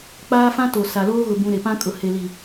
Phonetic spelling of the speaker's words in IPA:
k͡p aː˦ f ã˦ t o˨ s a˨ l oː˦ ɣ ʊ˨ b ũ˨ ɾ e˨ p ã˦ kʼ ʊ˨ h e˨ l i˨

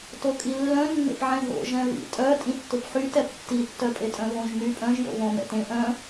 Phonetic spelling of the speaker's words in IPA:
t o kʼ i lː œ̃ nː ḛ p ʕ ɛ̃ ɦ o̰ ʒ ɛ̃ β ḭ tʼ œ tʼ ĩ tː ʊ p ħ y t ɛ p tː i tː œ pʼ e tʼ œ̃ β õ ʒ m y pʼ œ̃ ʒ j o̰ β õ m ɛ̰ t ẽ ʔ œ̃

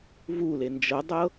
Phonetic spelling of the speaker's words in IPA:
v u l e n d͡ʒ ɤ dˤ ɤ

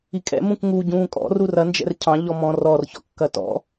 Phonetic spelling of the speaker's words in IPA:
i kʼ ɛ̰ m ũ k ŋ u ɟ ũː kʼ ɔ̰ r u r ɐ n d͡ʒ ɛ̰ r cʰ ɑ̃ ʎ ɔ m ɔ̃ r ɔ r ç ɔ̰ kː ɐ t ɔ̰

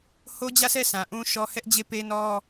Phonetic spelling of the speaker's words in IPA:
h o˦ d͡ʑ ä˦˨ s ɛ˦˨ s ã˨ ʔ ũ˦ ʃ ɔ˦ h ɛ˦ ʔ d͡ʑ e˦˨ p e˦ n ɔ˦

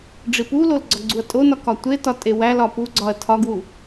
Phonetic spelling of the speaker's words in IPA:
ɖ͡ʐ i p u l o l ɡ͡ǀ ɒ ɡ͡ǀ u ɐ̯ tʼ o n ɒ k ɒ tʷ e t ɒ tʼ e w æ l ɒ p u ɡ͡ǀ ɒ ɐ̯ tʰ ɒ ɡ w u

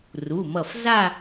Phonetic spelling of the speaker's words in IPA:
r u˩˧˩ m ʌ˧˩ f z a˥˧

